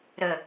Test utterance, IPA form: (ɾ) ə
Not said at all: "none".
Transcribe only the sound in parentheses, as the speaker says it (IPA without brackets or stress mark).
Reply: ɾ